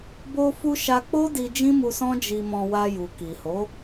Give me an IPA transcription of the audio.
b o˧ f u˧ ʃ a˧ k͡p o˦ d i˧ d͡ʒ ĩ˦ m u˧ s ɔ̃˦ d͡ʒ i˧ m ɔ̃˧ w a˧ j u˨ k i˨ h o˨˦

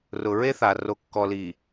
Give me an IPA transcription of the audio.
r ʊ˨ ɹ e˦ θ a˨ r o˨ kː ɔ˨ l i˨

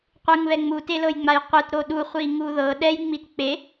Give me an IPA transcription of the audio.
qʷ ɯ ŋ β ɛ ŋ͡m u t e l ɤ j ŋ͡m a j qʷ ɯ t ɾ o ɗ u χʷ i ŋ u ð ɤ ɗ ɛ j ŋ͡m i t k͡p e

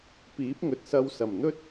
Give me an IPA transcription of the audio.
p iː˨˥ p̚ ŋ ɵ˨ t̚ s ɐ˧ w s ɐ˨˩ m n̪ ɵ˥ t̚

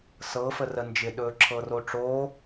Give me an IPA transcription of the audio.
s ɤ f ə r ə n d͡ʒ ɪ ɗ ɵː ǁʰ ɤ r o ʈ͡ʂ oː

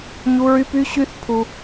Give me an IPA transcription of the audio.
ɲ u˦ ɹ y˦ p y˦ ɕ y˦ θ pʰ u˦

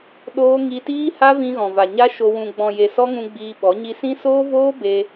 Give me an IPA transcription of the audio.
ɗ oː˦ ŋ i˧ t iː˦ h a˦ v ĩ˧ ɣ ɔ̃˨ v a˨ ɲ a˦ ʃ o˧ w ũ˨ ɡ͡b ɔ̃˨ j e˨ s ɔ˦ ŋ ũ˧ ɡ͡b iː˧ ɓ ɔ˨˦ ɲ i˧ s ĩ˦ s oː˦ v oː˦ b e˧

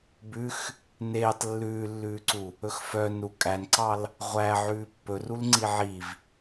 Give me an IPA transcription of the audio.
b ʉ x | n eː tˤ lː ʉː lː ʉː ǀ u | ɵ x f œ n ɾ u kʼ æ n ǀ ɑ l | ʁʷ æ ʕ ʉː pː ɵ r u l ŋ͡ǀ i ʕ i v

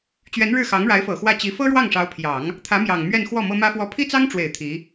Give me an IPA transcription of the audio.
t͡ɕ ɥ ɛ˧˥ n ɻ ɻ̩˥˩ x ɑ˧˥ ŋ ɻ a˧˥ ɪ̯ f ɤ˨˩ x w ä˥˩ t͡ɕ i˧˥ f ɤ˥ ɻ w ɑ˥˩ ŋ ʂ ɑ˧˥ ʊ̯ pʰ j ɑ˨˩˦ ŋ | t̪ʰ ä˧˥ m j ɑ˨˩ ŋ m ɥ ɛ˥˧ n x w ɔ˥˩ m ɤ˥ m ä˥ f w ɔ˥ pʰ i˥ t͡s ɑ˥ ŋ ʈ͡ʂ w e˨˩ ɪ̯ t̪ʰ i˧˥

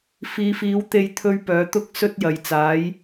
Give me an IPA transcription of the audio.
f iː˨˧ f iː˨˧ w t̪ e˧ j t̪ʰ ɵ˧ ɥ p œː˨˥ t̪ ʊ˥ k̚ s ɵ˥ t̚ j ɐ˨ j t͡s aː˨˥ j

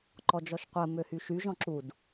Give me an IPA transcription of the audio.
ǃ ɔ d͡ʒ ɔ ʃ qʷ ɜ m ø h y ʃ y ʒ ɔ̃ ǁ u d

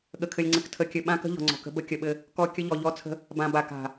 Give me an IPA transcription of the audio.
ɠ ə˨ kʰ ɘ˨ lʲ ŋ͡ǀ ɘ˨ k tʰ ə˨˦ kʲ ɘ˨ ɓ ã˦ k ə̤˦ ʎ ɔ̤˨ ŋ͡ǀ ɔ̤˨ k ə̤˦ b ə˦ kʲ ə˨ ɓ ɘ˦ | k ɔ˦ kʲ ə˦ ʎ ɔ˨ ʎ ɔ˦ t͡sʰ ə̤˦ | b ã˨ b a˨ k a̤˨

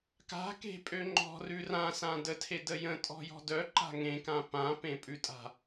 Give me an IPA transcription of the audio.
k a̤ k e̤ pʼ ø ŋ͡ǃ ɔ̤ r ʉ r ã s ã d ə tʰ e d ə j ə̃ tʼ ɔ̤ j ɔ̤ d œ ǃ a̤ ŋ ẽ k ã p ã p ẽ pʼ ʉ tʼ a̤

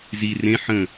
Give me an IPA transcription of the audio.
z i r ẽ ħ ə̃

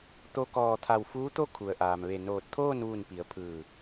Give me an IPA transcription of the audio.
t̪ o˧ k ɔː˧˩ t̪ʰ a˧˩ w f uː˧˥ t̪ o˥˨ kʰ u˩ ə̯ ʔ aː˩ m ʋ e˧˩ n oː˧˩ t̚ t̪ʰ oː˥˨ n ʋ u˧˩ n p i˩˧ ə̯ pʰ ɯː˧˩

